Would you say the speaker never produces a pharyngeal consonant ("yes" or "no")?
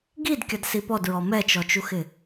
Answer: yes